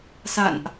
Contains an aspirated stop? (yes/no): no